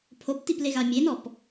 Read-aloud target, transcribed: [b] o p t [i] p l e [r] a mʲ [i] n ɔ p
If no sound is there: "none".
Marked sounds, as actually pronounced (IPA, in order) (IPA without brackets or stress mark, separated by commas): pʰ, i, ɣ, e